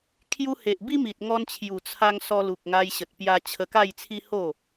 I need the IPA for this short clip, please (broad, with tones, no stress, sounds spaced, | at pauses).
kʰ j u˧ h e˨ ʔ b i˦ m i˨ t̚ ŋ ɔ˧ n t͡ɕʰ j u˨˩ t͡sʰ a˧ ŋ s ɔ˧ l u˨ k̚ ŋ a˧ j ɕ ə˨ t̚ p j a˧ t͡ɕʰ ə˧ k a˥˧ j t͡sʰ i˦ h o˥˧